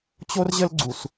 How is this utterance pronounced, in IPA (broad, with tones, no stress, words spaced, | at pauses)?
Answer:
t͡ɕo˦rʑə˦lɡ͡ǀu˨s